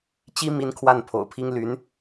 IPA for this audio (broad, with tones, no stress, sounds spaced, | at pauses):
t͡ɕ i˥ m i˥ n kʰ w a˥˩ n pʰ o̰˨˩ ʊ̯ pʰ i˥ ŋ l y˧˥ n